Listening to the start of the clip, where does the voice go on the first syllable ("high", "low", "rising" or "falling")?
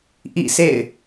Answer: falling